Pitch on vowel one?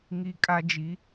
low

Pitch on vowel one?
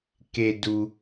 low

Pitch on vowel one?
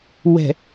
low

